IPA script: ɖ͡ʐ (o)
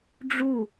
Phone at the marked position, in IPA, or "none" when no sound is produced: u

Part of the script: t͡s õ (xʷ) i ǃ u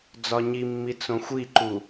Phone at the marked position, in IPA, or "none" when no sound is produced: xʷ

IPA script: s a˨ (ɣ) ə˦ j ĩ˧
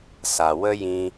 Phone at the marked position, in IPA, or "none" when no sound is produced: w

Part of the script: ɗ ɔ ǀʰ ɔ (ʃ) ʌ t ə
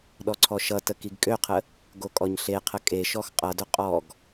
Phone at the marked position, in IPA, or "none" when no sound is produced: ʃ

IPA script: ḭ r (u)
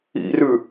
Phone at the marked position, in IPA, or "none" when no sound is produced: ʉ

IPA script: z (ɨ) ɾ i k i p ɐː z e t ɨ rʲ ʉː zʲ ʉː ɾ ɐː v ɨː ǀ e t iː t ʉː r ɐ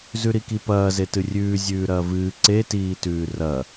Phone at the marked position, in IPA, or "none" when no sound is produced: ʉ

